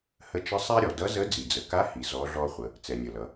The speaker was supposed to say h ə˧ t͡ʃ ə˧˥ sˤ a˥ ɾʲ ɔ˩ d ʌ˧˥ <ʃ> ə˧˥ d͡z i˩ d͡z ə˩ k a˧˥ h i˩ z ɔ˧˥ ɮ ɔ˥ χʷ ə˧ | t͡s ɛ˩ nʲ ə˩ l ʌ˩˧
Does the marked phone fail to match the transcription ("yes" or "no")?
yes